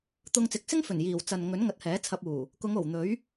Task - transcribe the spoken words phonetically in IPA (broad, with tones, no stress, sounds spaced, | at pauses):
t̪ ʊ˧ ŋ t͡s ɪ˨˥ k̚ s ɪ˥ ŋ f ɵ˨˩ n j iː˨˩ w t͡s ɐ˨ n ŋ ɵ˨˥ n ŋ ɐ˨ t̚ h ɛː˨˥ t͡sʰ ɐ˧ p̚ uː˨˩ | k ʊ˨˧ ŋ o˨˩ w n̪ ɵ˨˥ ɥ